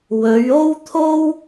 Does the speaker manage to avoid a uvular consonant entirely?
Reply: yes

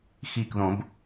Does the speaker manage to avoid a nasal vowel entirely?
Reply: no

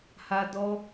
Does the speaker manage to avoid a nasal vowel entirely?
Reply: yes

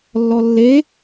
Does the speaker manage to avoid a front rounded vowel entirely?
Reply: yes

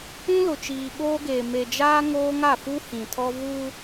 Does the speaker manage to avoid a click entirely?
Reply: yes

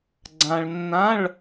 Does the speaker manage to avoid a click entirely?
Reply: no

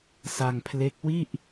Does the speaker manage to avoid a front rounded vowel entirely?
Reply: yes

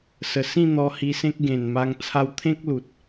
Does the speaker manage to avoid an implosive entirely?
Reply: yes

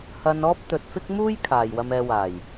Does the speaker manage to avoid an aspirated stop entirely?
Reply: no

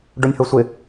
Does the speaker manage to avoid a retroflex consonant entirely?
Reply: no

